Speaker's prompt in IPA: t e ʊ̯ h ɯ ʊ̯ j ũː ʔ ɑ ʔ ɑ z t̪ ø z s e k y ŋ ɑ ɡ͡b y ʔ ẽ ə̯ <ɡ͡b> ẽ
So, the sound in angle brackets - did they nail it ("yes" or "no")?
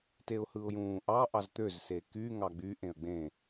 yes